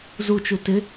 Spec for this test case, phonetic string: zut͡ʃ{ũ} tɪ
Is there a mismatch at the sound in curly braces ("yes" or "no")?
yes